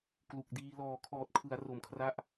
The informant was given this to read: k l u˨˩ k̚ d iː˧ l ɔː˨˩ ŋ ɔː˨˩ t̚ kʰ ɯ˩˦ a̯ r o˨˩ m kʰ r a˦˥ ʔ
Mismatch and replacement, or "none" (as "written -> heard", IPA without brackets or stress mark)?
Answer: ŋ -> kʰ